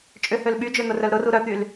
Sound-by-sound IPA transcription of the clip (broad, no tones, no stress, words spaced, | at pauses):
t͡ʃʼʏhøl ɓyd͡ʒøn̪ʊrœl ɾʊru ɾœt̪yl